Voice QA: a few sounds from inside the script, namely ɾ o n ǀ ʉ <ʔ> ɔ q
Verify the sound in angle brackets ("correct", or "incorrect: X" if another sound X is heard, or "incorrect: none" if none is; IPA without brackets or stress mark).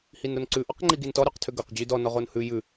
correct